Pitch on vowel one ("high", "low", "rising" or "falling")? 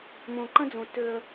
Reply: low